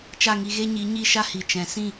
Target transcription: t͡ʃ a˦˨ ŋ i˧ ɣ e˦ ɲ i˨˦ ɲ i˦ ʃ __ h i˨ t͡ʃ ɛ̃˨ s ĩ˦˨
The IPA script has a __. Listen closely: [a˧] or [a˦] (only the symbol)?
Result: a˦